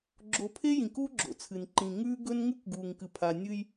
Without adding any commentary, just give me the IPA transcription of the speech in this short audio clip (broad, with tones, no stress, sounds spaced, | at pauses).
ɡ͡ǁ o˨ pʰ e˦ j ĩ˨ k u˦ ɡ͡ǁ o̰˨ t͡sʰ ɨ˨ n ǃ ĩ˨ ŋ ʉː˦ ɡ ɵ˦ n ŋ ʉ˦ k ɡ uː˨ ŋ k ɨ˨ pʰ a˨ nʲ ɨ˦ j